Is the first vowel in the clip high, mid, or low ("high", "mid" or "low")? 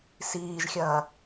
high